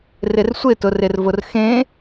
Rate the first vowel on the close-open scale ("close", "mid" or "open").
close